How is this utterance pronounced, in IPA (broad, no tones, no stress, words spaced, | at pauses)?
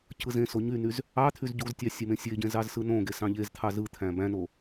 cʰɯzẽso ɲynyz | ɑt̪ʰyz ɟuztʲɑ sʲemẽsʲeɟẽ zɑzsɯnõɡe sɑ̃ʎezt̪ʰɑ zɯt̪ʰæ̃ bæ̃no